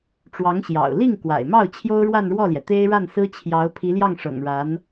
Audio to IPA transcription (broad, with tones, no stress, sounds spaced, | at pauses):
ʈ͡ʂ w ɑ˧˥ ŋ ɕ j ɑ̰˨˩ ʊ̯ l i˥˩ ŋ k w a̰˨˩ ɪ̯ m ɑ˥˩ ʊ̯ t͡ɕʰ j o˥ ʊ̯ ɻ w a˥˧ n ɻ w ɔ˥˩ l j ɛ˩ t̪ e˥ ɪ̯ ɻ a˥˩ n s ɹ̩˥ t͡ɕʰ j ɑ˧˥ ʊ̯ pʰ i˧˥ l j ɑ˥˩ ŋ ʂ ɤ̰˨˩ ŋ ɻ a˧˥ n